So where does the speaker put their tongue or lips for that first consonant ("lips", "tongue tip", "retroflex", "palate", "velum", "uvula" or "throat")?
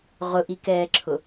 uvula